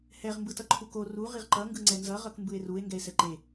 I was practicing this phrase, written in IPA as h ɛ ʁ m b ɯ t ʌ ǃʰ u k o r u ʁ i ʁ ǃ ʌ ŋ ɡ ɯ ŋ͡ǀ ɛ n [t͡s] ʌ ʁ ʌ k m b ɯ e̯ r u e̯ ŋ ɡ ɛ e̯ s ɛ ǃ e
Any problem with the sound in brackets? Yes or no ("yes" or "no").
yes